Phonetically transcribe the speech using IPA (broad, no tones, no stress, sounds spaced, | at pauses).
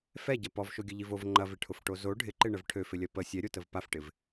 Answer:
f ɛ ɟ ɐ p ɔ v ʃ o ɡʲ ə ʎ i v o v ŋ͡ǃ ɐ v ɪ ʈʰ ʊ f ʈ o z o ɖʱ ɪ ǃ ɪ ɳ ə v ʈʰ ø f ɪ lʲ ɐ p ə sʲ ɛ ɾʲ o t ə v p a f ʈ ɪ v